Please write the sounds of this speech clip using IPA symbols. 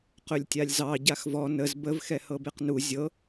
qɵlʲtʲalʲzɑ ɟaxvɔ nəz bəv xɛhɤbeqnu zʲɤ

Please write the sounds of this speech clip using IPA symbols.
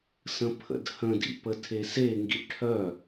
sə̃pʰə̰dhə̃dḭp ətʰeseŋɡḭ ʈʰœ

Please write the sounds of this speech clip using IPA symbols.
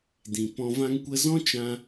dĩ˨pɔ̃˧ vã˧ŋkʷə˧zɔ̃˦ t͡ʃã˧

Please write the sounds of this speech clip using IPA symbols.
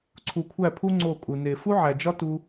ǀʰu˨kʷʰæ˦˨pʰu˦ ŋ͡ǀo˦˨kʼu˨ ne˨ fu˦ʕæ˨d͡ʒɒ˦ tu˦

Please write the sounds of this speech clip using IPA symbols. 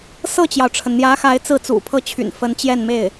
sɤ˥˩t͡ɕjɑ˩ʊ̯ʈ͡ʂʰə˩n n̪jä˧˥xa˧˥ɪ̯ t͡sɹ̩˥˩t͡sṵ˨˩pʰɤ˥˩t͡ɕʰy̰˨˩n fə˧˥nt͡ɕjɛ˥˧nme˥˩ɪ̯

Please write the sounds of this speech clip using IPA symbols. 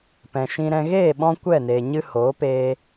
pɛ̃˨ʃĩ˧ɾɛ̃˧ ɣeː˦˨ɓɔ̃˧ kʷɛ˦˨neː˨ɲɨ˧ hoː˨˦peː˧

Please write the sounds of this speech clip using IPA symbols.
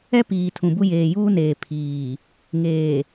ɛ˦piː˨ tʰũ˨bu˦ jeː˨juː˦neː˨ pʰiː˨ | ŋeː˨

